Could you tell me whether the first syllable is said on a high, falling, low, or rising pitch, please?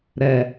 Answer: low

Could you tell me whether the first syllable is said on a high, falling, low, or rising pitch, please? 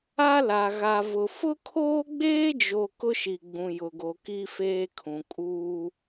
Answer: high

